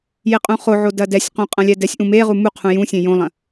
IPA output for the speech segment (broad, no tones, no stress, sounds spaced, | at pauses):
j e qʼ ũ χ o ʕ o d ɐ d ɛ sʲ q õ qʼ ɐ̃ lʲ ɛ d ɛ sʲ ʔ ũ m e ʁ u m u qʰ ũ j ũ sʲ ẽ j õ lˠ ɐ̃